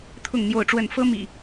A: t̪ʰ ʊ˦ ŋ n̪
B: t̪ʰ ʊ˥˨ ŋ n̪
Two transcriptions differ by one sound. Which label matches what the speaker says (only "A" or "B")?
B